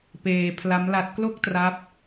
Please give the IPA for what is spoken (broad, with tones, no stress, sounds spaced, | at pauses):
p eː˧ pʰ l a˦˥ m l a˦˥ t̚ k l o˥˩ k̚ t r a˦˥ p̚